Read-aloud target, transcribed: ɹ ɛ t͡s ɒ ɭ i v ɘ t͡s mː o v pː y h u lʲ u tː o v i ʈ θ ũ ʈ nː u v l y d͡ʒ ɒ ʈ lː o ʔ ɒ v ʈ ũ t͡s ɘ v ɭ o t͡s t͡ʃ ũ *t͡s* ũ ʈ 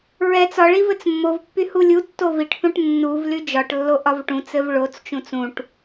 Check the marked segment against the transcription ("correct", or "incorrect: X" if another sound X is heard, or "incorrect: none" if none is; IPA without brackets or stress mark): correct